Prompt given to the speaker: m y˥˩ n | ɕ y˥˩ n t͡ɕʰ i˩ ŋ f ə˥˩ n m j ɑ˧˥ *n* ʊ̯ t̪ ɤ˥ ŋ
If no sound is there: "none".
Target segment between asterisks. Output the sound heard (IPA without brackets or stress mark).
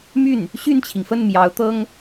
none